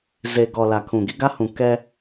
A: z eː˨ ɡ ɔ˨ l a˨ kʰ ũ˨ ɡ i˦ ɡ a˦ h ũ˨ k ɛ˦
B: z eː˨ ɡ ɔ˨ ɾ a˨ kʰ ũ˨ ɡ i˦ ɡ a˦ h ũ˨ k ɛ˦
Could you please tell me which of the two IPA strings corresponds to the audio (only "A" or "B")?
A